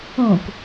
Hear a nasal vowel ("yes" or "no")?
yes